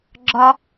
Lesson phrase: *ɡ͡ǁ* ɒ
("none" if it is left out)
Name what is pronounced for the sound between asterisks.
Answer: ɡ͡ǁ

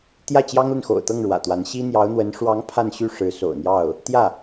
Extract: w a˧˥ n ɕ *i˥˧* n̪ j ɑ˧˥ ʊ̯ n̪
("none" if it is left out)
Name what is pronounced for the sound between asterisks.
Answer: i˥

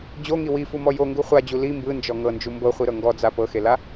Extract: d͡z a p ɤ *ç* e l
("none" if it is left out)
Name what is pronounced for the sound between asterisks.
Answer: x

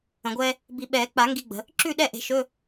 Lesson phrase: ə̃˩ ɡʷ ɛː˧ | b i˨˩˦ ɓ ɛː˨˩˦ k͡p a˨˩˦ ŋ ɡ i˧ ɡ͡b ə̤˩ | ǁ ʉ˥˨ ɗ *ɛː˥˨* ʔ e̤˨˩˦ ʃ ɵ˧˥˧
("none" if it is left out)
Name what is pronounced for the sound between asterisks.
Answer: ɛ˥˨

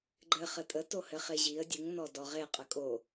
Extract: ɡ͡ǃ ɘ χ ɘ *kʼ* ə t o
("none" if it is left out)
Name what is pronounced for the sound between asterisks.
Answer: tʼ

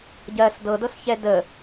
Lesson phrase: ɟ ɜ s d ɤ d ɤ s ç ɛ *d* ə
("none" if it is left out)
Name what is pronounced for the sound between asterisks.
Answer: d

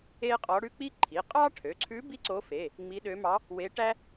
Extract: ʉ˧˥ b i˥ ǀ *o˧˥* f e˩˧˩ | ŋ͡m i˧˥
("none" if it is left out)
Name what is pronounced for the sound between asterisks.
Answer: o˧˥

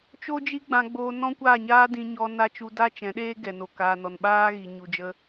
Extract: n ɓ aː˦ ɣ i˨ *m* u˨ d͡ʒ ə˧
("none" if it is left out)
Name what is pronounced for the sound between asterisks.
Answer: ɲ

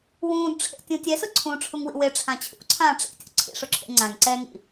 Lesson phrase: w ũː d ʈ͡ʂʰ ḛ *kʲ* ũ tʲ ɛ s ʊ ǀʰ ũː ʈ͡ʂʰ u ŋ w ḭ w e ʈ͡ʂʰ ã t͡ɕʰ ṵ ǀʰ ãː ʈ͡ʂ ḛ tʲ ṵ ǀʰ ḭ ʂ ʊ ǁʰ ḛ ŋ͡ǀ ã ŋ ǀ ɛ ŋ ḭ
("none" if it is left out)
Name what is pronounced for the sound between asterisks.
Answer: tʲ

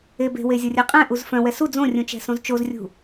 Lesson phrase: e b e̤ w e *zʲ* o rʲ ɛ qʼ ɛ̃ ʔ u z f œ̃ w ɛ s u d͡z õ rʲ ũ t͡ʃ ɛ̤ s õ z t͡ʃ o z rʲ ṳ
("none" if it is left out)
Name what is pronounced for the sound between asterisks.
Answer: zʲ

